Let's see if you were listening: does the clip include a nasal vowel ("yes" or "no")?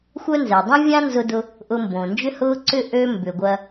yes